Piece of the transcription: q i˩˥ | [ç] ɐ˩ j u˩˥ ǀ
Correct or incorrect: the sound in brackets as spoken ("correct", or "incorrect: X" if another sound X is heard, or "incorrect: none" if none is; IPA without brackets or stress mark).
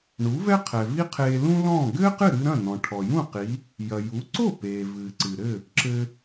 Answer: incorrect: j